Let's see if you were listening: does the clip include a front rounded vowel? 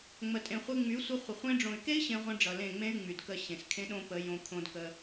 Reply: yes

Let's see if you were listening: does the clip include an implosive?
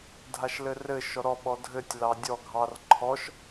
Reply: yes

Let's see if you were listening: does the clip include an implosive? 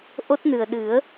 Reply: yes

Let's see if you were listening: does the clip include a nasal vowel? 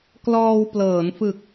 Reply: no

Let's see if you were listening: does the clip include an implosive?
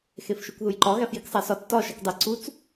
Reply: no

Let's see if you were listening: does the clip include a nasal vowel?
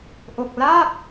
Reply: no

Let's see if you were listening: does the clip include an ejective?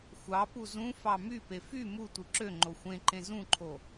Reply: no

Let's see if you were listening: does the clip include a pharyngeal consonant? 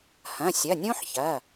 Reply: yes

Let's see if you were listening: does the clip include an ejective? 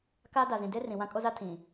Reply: yes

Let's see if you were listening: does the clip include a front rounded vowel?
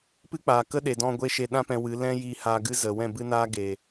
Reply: no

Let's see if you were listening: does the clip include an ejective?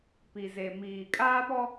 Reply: yes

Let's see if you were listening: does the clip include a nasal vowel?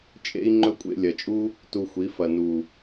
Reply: no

